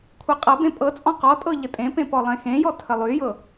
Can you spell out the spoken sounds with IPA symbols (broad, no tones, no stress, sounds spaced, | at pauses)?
kʷʰ e qʼ ɤ b ẽ pʼ ɤ t͡sʼ ɔ̃ q ɔ tʼ ɤ ʎ ə tʼ ẽ p ẽ p ɔ lˠ ẽ x ẽ j ɔ tʰ ə lˠ y j ɤ